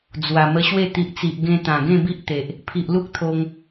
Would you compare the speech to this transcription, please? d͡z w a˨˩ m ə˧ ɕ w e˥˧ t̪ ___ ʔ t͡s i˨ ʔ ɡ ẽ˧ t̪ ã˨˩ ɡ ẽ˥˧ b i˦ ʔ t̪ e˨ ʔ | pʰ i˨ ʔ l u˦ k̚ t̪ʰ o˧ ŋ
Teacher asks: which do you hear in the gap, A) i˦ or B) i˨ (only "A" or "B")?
B